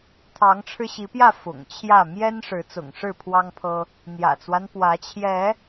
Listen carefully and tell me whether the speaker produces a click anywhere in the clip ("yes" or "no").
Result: no